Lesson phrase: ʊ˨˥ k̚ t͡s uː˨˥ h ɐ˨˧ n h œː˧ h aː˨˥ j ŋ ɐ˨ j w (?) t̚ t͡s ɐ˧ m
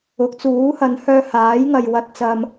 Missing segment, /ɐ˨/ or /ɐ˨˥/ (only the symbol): ɐ˨